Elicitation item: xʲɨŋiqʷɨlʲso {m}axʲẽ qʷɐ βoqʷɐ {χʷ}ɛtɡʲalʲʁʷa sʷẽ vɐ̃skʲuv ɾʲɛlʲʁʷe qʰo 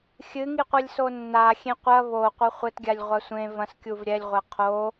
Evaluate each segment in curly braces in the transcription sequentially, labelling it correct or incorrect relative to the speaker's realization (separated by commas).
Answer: incorrect, correct